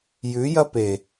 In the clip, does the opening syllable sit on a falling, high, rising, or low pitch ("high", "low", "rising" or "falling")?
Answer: rising